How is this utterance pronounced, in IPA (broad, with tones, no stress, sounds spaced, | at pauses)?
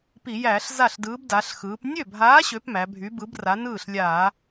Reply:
p i˧˩˧ j æː˧˩˧ ɬ z a˥˩ ɬ d ɯː˨˥ b d a˩˧ ɬ x ɯː˩˧ p nʲ ø˥˩ bʱ aː˨˥ ɕ ø˩˧ p m æ˩˧ bʱ y˨˥ b ɯ˨˥ b r a˨˥ n ɯː˥˩ ɬ lʲ aː˧˩˧